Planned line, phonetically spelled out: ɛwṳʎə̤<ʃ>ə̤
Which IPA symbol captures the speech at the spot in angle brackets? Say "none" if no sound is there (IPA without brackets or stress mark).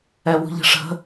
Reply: ʂ